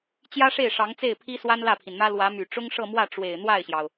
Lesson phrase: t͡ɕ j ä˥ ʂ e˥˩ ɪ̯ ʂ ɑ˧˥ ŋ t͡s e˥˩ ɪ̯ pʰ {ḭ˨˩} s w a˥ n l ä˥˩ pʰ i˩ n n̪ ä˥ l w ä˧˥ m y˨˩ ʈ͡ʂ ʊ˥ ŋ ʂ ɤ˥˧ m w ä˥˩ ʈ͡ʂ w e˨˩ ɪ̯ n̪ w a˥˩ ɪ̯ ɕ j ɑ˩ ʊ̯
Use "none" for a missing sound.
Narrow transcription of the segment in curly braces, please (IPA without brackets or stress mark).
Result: i˥